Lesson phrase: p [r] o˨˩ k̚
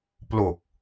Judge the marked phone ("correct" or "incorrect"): incorrect